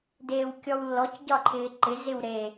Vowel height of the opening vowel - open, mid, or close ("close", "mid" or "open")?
mid